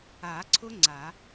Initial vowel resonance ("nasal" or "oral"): oral